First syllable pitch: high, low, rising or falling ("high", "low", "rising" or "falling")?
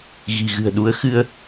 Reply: low